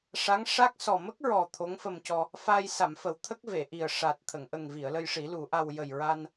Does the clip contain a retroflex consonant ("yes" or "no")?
yes